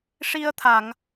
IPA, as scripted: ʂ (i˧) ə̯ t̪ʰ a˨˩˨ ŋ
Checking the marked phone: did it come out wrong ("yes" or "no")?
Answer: no